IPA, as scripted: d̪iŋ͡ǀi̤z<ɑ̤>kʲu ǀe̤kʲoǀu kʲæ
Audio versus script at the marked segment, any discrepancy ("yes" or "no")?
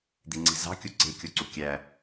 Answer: no